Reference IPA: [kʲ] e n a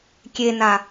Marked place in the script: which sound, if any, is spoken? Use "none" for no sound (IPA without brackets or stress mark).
kʲ